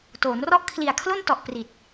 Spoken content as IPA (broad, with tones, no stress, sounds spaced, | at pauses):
t oː˩˦ n r ɔ˥˩ ʔ kʰ l i˨˩ a̯ kʰ l o˥˩ n t ɔ˨˩ ʔ p r i˨˩ t̚